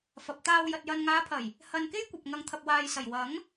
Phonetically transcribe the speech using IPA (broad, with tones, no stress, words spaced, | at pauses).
fɐ˨p̚t̪aː˧w jɐ˧t̚jɐ˧n ŋaː˨˧pʰɐ˨˩j | hɐ˧nke˥jkʷɐ˨p̚ ŋɐ˨ŋt̪ʰɐ˨p̚waː˨jsɐ˨˩j wɐ˨˥ŋ